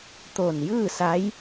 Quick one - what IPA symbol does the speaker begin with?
t̪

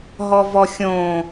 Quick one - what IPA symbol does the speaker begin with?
ɦ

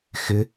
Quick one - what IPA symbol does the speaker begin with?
x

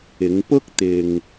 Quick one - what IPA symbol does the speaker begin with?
ɪ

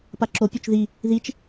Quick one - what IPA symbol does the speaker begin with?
p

